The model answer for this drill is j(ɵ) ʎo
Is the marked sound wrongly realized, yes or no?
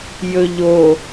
no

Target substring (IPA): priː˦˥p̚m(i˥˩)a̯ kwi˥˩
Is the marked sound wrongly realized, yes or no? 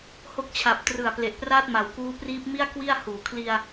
no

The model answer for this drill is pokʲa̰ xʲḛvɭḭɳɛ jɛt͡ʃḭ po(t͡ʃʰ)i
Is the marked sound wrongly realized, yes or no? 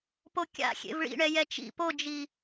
yes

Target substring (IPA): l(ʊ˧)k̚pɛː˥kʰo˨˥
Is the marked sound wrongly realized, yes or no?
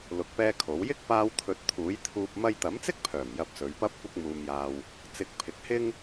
no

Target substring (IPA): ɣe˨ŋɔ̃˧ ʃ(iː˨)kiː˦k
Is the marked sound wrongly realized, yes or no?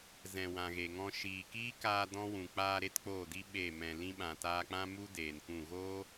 no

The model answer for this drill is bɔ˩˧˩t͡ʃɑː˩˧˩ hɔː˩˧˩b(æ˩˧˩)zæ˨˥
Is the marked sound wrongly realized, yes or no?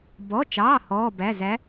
no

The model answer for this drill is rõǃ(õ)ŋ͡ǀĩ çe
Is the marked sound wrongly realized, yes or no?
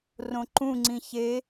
yes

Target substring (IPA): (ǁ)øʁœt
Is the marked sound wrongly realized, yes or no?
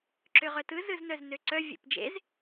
no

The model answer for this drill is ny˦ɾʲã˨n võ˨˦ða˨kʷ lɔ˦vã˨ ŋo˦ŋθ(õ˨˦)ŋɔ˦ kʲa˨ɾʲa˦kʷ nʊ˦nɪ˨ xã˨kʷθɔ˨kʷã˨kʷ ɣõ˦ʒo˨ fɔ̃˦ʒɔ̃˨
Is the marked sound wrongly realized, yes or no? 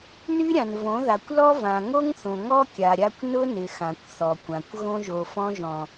yes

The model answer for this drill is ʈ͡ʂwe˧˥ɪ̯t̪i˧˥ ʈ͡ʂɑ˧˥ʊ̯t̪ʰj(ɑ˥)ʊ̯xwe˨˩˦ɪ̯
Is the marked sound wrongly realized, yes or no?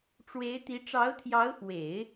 yes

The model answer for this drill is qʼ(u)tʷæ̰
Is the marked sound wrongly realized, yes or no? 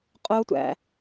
yes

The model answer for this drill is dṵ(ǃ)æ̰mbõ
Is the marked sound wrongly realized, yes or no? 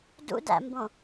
yes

